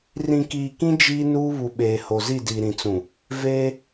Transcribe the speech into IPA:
r ĩ˨ k iː˨ k ĩ˦ d͡ʒ iː˦ n uː˦ β u˨ ɓ eː˨ h o˨ z i˦˨ d i˨ ɾ ĩ˨ t͡s ũ˨ | v eː˦

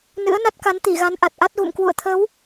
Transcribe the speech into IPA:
n ɨ̰˧˥ ə̯ n a˦˥ t̚ k a˨˦ n t̪ i˧˩ ɣ a˨˦ n ʔ a˨˩ t̚ ʔ a˦˥ t̚ ɣ ṵ˧˨ m k w ṵ˧˨ ə̯ t̪ʰ ə˨˦ w

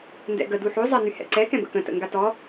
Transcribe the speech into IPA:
n d ɛ̰ ɡ ə d u ħ o zˤ a n y h ɛ̰ ǀ ɛ k ɛ̃ b ə̰ k ə̃ t ə̰ ŋ ɡ a t ɔ

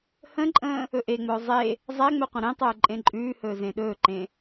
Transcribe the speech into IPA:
h ə̃ ǃʼ ə̃ː | ɵ ʔ e ŋ͡m ɵː zˤ e | zˤ æ ŋ͡m ɵ qʷ ə̃ ɾ ẽ tˤ ɵː ǃʼ ẽ ǃʼ ʉː h ɵː z ẽ ɗ ɵː ǃ ẽ

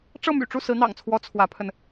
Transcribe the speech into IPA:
ʈ͡ʂ ɤ˥˩ m y̰˨˩ ʈ͡ʂ u˥˩ s ɹ̩˧˥ n̪ ɑ̰˨˩ ŋ t͡sʰ w ɔ˧˥ t͡sʰ w ä˧˥ pʰ ə˧ n

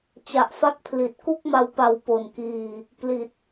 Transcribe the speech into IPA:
t͡ɕ a˨˩ ʔ f a˦˥ k̚ pʰ l i˨˩ t̚ k u˥˩ k̚ m a˧ w p a˨˩ w p o˨˩ n k iː˧ | p l i˨˩ t̚

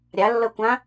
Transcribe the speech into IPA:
ɾʲ a lː ɤ kʷ ã

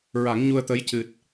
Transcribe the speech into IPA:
ɹ a˨˩˦ ŋ ɲ u˧ ə̯ t̪ ə˧˥ j c ɨ˨˩ t̚

